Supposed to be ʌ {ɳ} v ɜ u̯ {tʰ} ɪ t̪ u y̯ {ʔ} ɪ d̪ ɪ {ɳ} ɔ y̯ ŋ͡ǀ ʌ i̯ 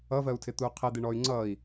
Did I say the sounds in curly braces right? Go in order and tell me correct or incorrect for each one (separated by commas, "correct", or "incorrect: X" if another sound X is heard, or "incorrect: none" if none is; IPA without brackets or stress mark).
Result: incorrect: none, correct, incorrect: qʰ, correct